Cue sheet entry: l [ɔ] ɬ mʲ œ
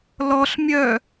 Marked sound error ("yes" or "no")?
no